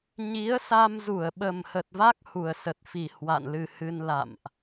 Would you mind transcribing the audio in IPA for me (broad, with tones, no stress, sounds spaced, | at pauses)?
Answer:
ɲ i˨˦ ə̯ s a˧ m z u˧˩ ə̯ ɓ ə˨˩ m h ə˨˩ t̚ v a˦˥ k̚ h u˨˩ ə̯ s ə˨˩ t̚ f i˨˩ h w a̰˧˨ n l ɨ˨˩ h ɨ˧ n l a̰˧˨ m ʔ